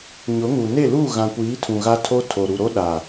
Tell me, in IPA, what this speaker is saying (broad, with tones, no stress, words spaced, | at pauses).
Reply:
ɲʊ˨˦ŋu˨ ne˦˨lu˦˨ɣã˨kʷiː˨˦ tʰũ˨ɣa˦ tʰo˦tʰo˨ ɾu˨ɾo˦ɗa˨